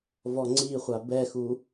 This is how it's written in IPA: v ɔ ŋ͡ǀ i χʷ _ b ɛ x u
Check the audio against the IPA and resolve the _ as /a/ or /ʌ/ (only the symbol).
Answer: a